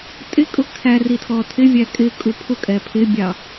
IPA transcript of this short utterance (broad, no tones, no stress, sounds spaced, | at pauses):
tʼ ɪ kʼ ʊ kʰ æ r i tʰ ɔ tʰ ɪ vʲ æ kʼ ɪ kʼ u pʰ ʊ kʼ ɛ pʰ ɪ bʲ ɑ